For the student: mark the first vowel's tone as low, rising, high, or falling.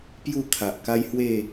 falling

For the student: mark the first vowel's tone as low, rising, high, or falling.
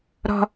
low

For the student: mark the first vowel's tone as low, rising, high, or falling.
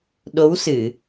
rising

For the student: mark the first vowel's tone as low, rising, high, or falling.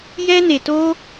high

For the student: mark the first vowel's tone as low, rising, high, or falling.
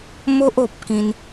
high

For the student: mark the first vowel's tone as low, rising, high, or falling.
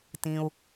low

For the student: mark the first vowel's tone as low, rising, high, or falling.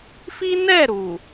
high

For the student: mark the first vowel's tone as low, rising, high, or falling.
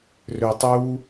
low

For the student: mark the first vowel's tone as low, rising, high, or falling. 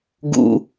low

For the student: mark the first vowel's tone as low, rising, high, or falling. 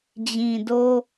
low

